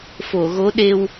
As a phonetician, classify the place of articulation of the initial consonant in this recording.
labial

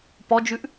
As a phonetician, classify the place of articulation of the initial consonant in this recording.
labial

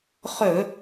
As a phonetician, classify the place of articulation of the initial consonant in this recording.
uvular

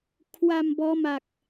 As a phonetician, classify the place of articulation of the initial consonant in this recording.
velar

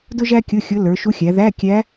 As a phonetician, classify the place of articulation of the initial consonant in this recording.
alveolar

